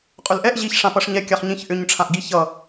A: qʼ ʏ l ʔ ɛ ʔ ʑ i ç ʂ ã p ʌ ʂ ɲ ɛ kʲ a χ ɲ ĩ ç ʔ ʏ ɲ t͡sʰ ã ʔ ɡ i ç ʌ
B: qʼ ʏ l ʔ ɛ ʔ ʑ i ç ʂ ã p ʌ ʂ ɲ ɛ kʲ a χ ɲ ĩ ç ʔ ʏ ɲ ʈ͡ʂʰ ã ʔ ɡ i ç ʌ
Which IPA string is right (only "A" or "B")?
B